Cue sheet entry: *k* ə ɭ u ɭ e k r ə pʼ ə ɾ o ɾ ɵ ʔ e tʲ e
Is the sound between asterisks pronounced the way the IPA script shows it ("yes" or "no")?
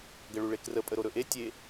no